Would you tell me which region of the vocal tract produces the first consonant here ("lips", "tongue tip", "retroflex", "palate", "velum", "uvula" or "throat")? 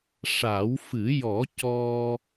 retroflex